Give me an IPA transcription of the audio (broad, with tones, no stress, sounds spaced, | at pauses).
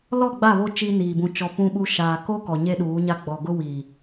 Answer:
l ɔ˦˨ ɡ͡b a˦˨ β o˦ t͡ʃ i˦ n iː˨ b ũ˦ t͡ʃ ɔ˦ p ũ˦ ɓ u˦ ʃ aː˨ k o˦ k ɔ˨ ɲ e˦ ɗ uː˨˦ ɲ a˦ ɡ͡b ɔ˨ ɡ ʊ˦ w i˨